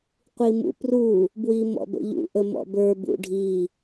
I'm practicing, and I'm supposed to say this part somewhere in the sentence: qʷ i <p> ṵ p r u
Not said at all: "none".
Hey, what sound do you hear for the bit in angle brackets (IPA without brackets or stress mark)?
m